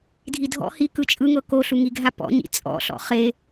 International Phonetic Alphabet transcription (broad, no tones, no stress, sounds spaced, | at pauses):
dʱ i dʱ ɔ̰ h i k ɯ t͡ʃʼ ɯ ŋ ɤ k o ɬ u ŋ i ɡʱ a p ɔ̰ ɲ ḭ t͡sʼ ɔ̰ ɬ ɔ̰ χ e